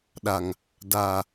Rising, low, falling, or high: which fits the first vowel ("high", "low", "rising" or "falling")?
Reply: low